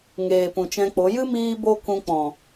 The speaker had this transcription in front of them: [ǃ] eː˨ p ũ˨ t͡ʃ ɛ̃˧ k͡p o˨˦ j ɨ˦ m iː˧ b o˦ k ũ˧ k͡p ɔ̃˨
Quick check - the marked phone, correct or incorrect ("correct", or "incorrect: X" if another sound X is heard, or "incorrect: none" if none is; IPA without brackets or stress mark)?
incorrect: ŋ